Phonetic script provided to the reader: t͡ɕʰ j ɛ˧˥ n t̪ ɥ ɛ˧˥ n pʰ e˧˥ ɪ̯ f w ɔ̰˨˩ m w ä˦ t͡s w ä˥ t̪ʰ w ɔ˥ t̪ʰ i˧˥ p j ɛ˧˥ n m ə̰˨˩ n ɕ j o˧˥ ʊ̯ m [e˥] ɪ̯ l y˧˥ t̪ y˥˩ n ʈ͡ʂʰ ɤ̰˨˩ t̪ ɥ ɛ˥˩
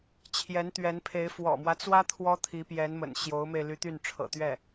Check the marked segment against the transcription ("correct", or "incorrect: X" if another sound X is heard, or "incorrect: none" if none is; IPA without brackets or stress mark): incorrect: e˧